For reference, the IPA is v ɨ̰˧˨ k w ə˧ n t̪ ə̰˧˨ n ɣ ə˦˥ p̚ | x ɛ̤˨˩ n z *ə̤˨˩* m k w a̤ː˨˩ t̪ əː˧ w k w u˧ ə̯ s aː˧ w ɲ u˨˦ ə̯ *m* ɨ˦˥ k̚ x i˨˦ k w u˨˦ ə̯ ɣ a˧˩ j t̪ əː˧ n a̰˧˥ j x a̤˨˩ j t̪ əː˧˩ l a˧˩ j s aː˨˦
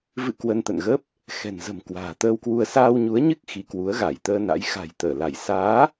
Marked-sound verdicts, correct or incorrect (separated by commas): correct, incorrect